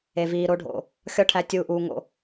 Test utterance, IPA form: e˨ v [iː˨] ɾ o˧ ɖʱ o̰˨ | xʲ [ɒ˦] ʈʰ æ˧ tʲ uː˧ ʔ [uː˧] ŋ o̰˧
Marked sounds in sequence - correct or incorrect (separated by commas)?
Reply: correct, correct, correct